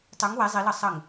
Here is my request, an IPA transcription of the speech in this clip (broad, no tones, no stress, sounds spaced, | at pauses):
tˤ u ŋ w e zˤ i l ɤ sˤ ə ŋ